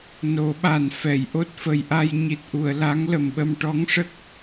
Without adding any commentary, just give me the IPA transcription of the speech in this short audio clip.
n o˨˩˦ ɓ a˨˩ n f ɛ˨˩˨ j ʔ o˦˥ t̚ f ə˨˩ j ʔ a˧ j ɲ i˨˩ t̚ ʔ u˨˩˨ ə̯ l a˧˥ ŋ l ə˨˩ m ɓ ə˧ m ʈ ɔ˧˥ ŋ ʂ ə˦˥ k̚

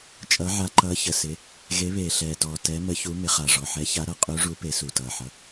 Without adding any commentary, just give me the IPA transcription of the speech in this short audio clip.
t͡ʃʼ ʌ˨˦ ʕ a˨˦ ǃ ʌː˨˦ ç ə˨˩ s ɪ˨˦ | ɣ e˨˦ β eː˨˩ ɬ ɛː˨˩ t ɔː˨˩ t ɛ˨˦ m ə˨˦ ç u˨˦ m ɪ˨˦ χ a˨˩ ʐ ɔ˨˩ ħ ɛ˨˦ ç a˨˦ ɾ ʌ˨˦ qʼ u˨˦ ʐ u˨˦ p e˨˦ s u˨˩ t ʌː˨˩ ħ ʌ˨˦

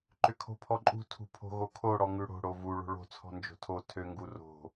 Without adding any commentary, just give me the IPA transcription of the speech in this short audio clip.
ǃ ʏ kʰ o̤ pʰ ɔ ǃʼ ṳ tʰ ṳ pʰ o̤ ɣ o kʰ o ɽ ɔ ŋ ʉ ɽ o̤ ɽ o v u ɭ o̤ ɭ o̤ t͡sʰ ɔ̤ n d͡ʒ o̤ tʰ o tʰ ø ŋ ɡ u r o̤

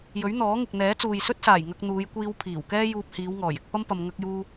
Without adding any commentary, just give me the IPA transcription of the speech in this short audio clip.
j ɵ˨˥ ɥ n̪ ɔː˨˥ ŋ ɪ˨ k̚ n̪ ɛː˨˥ t͡s uː˨ j s ɵ˥ t̚ s aː˨˩ j ŋ ɐ˧ k̚ n̪ uː˨˧ j kʷ iː˧ w pʰ iː˨˩ w k ɛː˥ j uː˧ p̚ h iː˨˧ w ŋ ɔː˨˩ j ɪ˧ k̚ p ɐ˥ m p ɐ˧ m ŋ ɐ˥ k̚ j uː˥

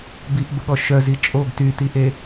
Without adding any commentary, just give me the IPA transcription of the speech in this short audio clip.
b i ʔ b ə ɠ ɔ ʃ œ z i t͡ʃʼ o ɡ t y t i ʔ e

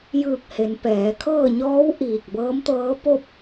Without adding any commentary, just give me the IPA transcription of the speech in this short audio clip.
j ɯː˧˩ k̚ h e˩˧ n p ɛː˩˧ kʰ ɤː˥˨ ɲ ɔː˧˥ w ʔ iː˧˩ k̚ b ɤː˧˥ m t̪ ɤː˧˥ p o˥˨ p̚

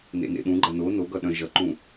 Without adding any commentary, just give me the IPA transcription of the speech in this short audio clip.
n ḛ n ḛ ɗ ũ ɡ͡ǃ ɐ n o n o ɡ ʌ ɗ œ̃ ʒ ʌ ǃ ũ

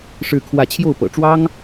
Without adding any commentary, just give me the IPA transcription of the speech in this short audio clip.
ʂ ɻ̩˥˧ kʰ w ä˥˧ t͡ɕʰ j o˥˩ ʊ̯ p ɤ̰˨˩ ʈ͡ʂ w ɑ˥ ŋ

